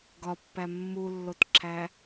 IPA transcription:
ɡ ɒ pː æ mː u lː o t ǁʰ æ

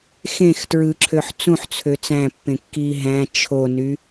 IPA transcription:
x ẽ x t ɹ ɯ ǁʰ ø ħ t͡s ũ ħ t͡sʰ ø t͡s æ̃ pː ẽ kː iː ɦ æ̃ t͡ʃʰ o n y

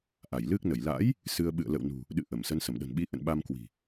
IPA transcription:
ʔ a˧˩ j l ɨ˦˥ k̚ n ə˧˩ j l a̰˧˥ j | s ɨ˧ ə̯ ɓ ɨ̰˧˨ ə̯ l ə̰˧˨ w n ṳ˨˩ | ɗ ɨ̰˧˨ ʔ ə˧˩ m s ə˨˦ n s ə˧˩ m ɗ ə̤˨˩ n ɓ i˨˦ ʔ ə̰˧˨ n ɓ a˧ m k w i̤˨˩

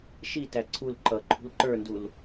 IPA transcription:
ʃ i t æ ǀʰ u l ǃ ʌ ǃʰ ṳ l ǃ ə˞ n d u l

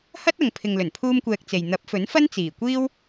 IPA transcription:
h ɐ˥ t̚ ɐ˨ ŋ pʰ ɪ˨ ŋ l ɵ˨˩ n pʰ uː˥ m kʷ ɛː˧ k̚ t͡s e˨ j n̪ ɐ˨˥ p̚ f ɵ˨˥ n f ɐ˥ n t͡s iː˨˩ kʷ iː˥ w

